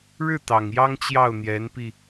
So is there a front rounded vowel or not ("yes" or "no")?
no